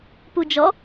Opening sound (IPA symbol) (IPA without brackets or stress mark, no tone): p